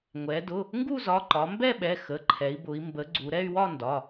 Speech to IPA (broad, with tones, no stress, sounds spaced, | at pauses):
ŋʷ ɛ˩˧ d ʊ˩˧˩ | ŋ ɡ u˥˧ z ɒ˩˧˩ ǃ ɒ˩˧ m b ɛ˥˧ ɓ ɛ˩˧˩ x ə˩˧˩ ǃʰ ɛ˩˧ i̯ b ʊ˩˧ i̯ m b ə˩˧ ɡ͡ǀ u˩˧ ɾ ɛ˥˧ y̯ w ɒ˥˧ n d ɒ˩˧˩